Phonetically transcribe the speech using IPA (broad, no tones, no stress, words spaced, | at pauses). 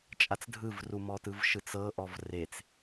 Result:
t͡ʃʼat͡sdʱɯvru mɔtɯvʃɯt͡sɤ ʔɔvret͡s